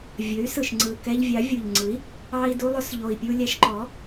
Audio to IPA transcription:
vʲ ɵ˩˥ y̯ s ɯ˨˩ ʃ ŋ͡ǀ ɯ˨˩ k ɛ˧ ʎ vʲ ɑ˩˥ vʲ u˨˩ ʎ ŋ͡ǀ ɯ˩˥ i̯ | ɑ˧ i̯ d u˧ lˠ ɵ˧ s ʎ o˨˩ i̯ pʲ u˧ lʲ æ˧ ʃ ǃ ɔ˩˥

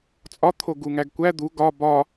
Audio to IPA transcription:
t͡sʼ ɒ t̪ʰ o ɡ u ŋ æ ɡ kʷ æ d̪ u ɡ ɒ b ɒ

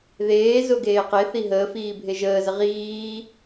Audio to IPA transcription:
ð eː z ʊ ɡ eː q e θ i ɦ əː f iː bʱ e ʒ əː z ə ʁ iː

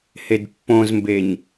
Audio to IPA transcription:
h e d pː õ z m b e ɲ

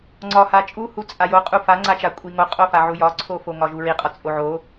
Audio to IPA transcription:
ŋ͡ǀ ɒ h a t͡ʃʼ u h u t͡sʼ a j o qʼ u f a ŋ͡ǀ a t͡ʃ a kʷʼ i ŋ o qʼ o f a ʕ u j ɒ ǀʰ o f o ŋ ɒ ʒ u ɹ i qʼ ɒ t͡sʼ o ʕ o

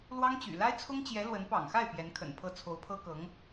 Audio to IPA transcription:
l w ɑ˥ ŋ t͡ɕ y̰˨˩ l a˥ ɪ̯ t͡sʰ ʊ˥ ŋ t͡ɕ j ɛ˧˥ l w ə˧˥ n p ɑ̰˨˩ ŋ x a˥˩ ɪ̯ p j ɛ˧˥ n kʰ ə̰˨˩ n pʰ ɤ˥˩ t͡sʰ o˧˥ ʊ̯ pʰ ɤ˥ k ɤ˧˥ ŋ

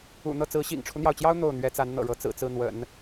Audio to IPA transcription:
ṵ˨˩ n̪ ɤ˥˩ t͡s ɹ̩˧˥ ɕ ḭ˨˩ ŋ ʈ͡ʂʰ u˦ n̪ j ɑ˩ ʊ̯ t͡ɕ j ɑ˥ ʊ̯ n̪ o˥˩ ʊ̯ n̪ ɥ ɛ˥ t͡s a˧˥ n n̪ ɤ̰˨˩ ɻ ɤ˧˥ t͡s ɹ̩˨˩ t͡s ɹ̩˥˩ n̪ w ə̰˨˩˦ n

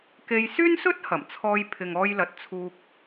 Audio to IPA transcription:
k e˧ j s yː˥ n s ɵ˥ t̚ h ɐ˨˩ m t͡sʰ ɔː˧ j pʰ ɪ˨ ŋ ɔː˧ j l ɐ˨ t̚ t͡sʰ uː˧ k̚

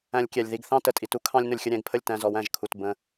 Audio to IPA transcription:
æ̃˧ lʲ kʲ ɛ˨ lʲ ð i˧ ɡ θ ɑ̃˦ t ə˨ tʼ i˧ t u˦ kʰ ɑ̃˦ lʲ n ʊ˧ lʲ xʲ ə˧ ɾʲ ɛ̃˦˨ ɡ pʰ ə˦˨ lʲ t æ̃˧ z ɔ˨˦ w æ̃˧ ʒ kʰ u˧ t b ə̃˦

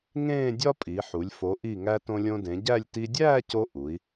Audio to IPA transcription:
ŋ ẽː˥˧ dʲ ɒ˥ pʼ i˩˧ ħ u˩˧ lʲ f o˩˧ ʔ i˧˩ ŋ æ˧ t õ˧ lʲ õ˧ d ẽ˩˧ ɟ æ˥˧ lʲ t i˧ dʲ æː˥˧ c o˧ ʔ u˩˧ i̯

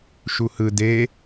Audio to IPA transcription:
ʃ u h ɯ d e

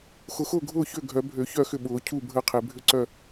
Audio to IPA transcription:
x ʊ˨˩˦ x ʊː˥˩ ɡʱ ʊː˥˩ ç ø˥˩ ɡʱ œ˨˩˦ bʱ ø˨˩˦ ç œ˥˩ x ʏ˥˩ ɓ ʊː˨˩˦ cʰ uː˥˩ bʱ əː˥˩ qʰ e˨˩˦ bʱ ʏ˥˩ ǀ œ˥˩

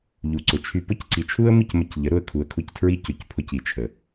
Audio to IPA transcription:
ʎ u˨ ǀ ʊ˨ t͡ʃʰ y˧ p ʊ˦ c ǀ i˨ t͡ʃʰ u˦ ə̯ m i˦˨ c m ə˧ c ʎ ə˨˦ ɾ ʊ˦˨ ə̯ kʰ u˧ ə̯ kʰ u˦˨ c tʰ ɹ i˦ c ʊ˨ c pʰ ʊ˧ c i˨ t͡ʃʰ ə˨

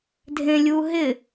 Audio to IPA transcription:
dʱ ẽ lʲ u ɦ ɪ

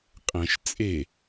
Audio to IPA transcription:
qʼ ɛ̃ ʃ t͡sʼ e

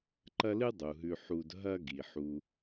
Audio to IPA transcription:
ǃ ɐ˦ l ɨ˥ dˤ u˩ ɦ ʉ˨ ħ u˨ d ɦ ɐ˥ ɡ i˩ ħ u˨

